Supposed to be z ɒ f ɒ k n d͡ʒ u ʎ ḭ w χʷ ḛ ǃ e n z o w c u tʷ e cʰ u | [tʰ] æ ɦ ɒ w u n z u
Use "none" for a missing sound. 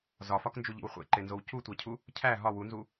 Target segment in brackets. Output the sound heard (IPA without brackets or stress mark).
cʰ